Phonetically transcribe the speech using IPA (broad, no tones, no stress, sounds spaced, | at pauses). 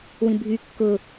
w ĩ bʱ y kː ʊ